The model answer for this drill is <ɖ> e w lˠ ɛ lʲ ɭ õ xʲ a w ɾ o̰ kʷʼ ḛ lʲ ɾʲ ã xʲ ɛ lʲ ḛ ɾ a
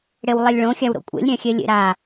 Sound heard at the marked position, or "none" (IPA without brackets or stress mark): ɽ